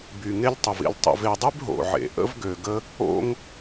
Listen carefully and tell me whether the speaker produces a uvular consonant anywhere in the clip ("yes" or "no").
no